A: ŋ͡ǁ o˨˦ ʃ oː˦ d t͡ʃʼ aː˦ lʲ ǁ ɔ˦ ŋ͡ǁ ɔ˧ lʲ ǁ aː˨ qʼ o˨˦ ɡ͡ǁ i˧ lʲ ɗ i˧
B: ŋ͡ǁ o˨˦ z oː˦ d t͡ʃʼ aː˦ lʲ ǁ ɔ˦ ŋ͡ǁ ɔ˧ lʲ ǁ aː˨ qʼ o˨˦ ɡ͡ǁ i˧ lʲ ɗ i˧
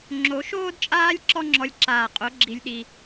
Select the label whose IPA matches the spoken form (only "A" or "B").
A